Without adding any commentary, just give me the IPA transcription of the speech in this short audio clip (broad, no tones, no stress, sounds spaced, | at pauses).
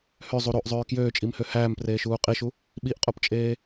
h ø zˤ u ɾ o ʔ zˤ øː k j øː t͡ʃʼ i m h ø h æː m p r eː ʃ uː qʼ i ʃ u | ɓ i ʔ qʼ o p t͡ʃʼ eː